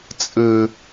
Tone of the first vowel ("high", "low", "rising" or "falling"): low